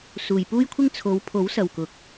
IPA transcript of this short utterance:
suː˨jpuː˥jkʷʰɪ˥ŋ t͡sʰo˨˧wpʰo˨˥w sɐ˨wkʊ˨˥k̚

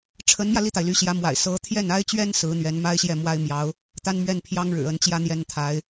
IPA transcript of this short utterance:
ʈ͡ʂʰə˧˥nmjä˧ li˥˩t̪a˩ɪ̯ ly˧˥ɕjä˧˥ mwa̰˨˩ɪ̯ sɤ˧˥ t̪ʰjɛ˥˩na˥ɪ̯t͡ɕɥɛ˥n sɹ̩˧˥ n̪ɥɛ˧˥nma˥ɪ̯ɕjɛ˥˩ mwa˥ɪ̯mjɑ˧˥ʊ̯ | t̪a˥nmɥɛ˥˩n pʰjɑ˥ŋɻɻ̩˨˩ə˧˥nt͡ɕjä˥˧ n̪jɛ˥˩nt̪ʰa˧˥ɪ̯

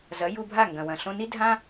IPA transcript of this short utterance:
zɐ˩˥ ju˧bʱa˥˩ ŋɡɐ̃˩wɐ̃˩ ɬõ˧ni˥ dʱã˥

